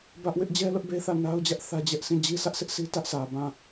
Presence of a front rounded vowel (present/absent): absent